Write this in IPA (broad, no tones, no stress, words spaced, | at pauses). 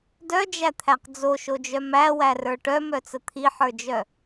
dœd͡ʒæt̪ʰæq d͡zoʃod͡ʒœ mæwærə˞ ʈœmœt͡sə t̪ʰiħə˞d͡ʒœ